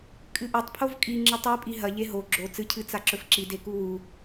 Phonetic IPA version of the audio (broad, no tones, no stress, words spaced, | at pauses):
kʼɨʔɵtˤpʰov kʼi ŋ͡ǁɨtˤipʼi ɦɐ ʎeɦo ɡ͡ǁo t͡sɨcʰɨ t͡saǁɵfǁi dekuwu